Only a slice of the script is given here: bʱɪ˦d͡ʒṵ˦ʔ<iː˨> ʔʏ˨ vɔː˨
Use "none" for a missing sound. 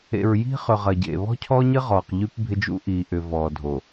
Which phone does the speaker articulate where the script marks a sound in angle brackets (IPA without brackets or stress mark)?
iː˨